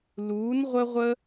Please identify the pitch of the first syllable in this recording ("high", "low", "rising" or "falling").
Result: rising